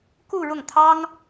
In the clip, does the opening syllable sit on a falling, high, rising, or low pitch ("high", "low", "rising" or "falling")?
falling